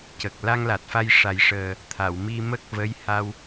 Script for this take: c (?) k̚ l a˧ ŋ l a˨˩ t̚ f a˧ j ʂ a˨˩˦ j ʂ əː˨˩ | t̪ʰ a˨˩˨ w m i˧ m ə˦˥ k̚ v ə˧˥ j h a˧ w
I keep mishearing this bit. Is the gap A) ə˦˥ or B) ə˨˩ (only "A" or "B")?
B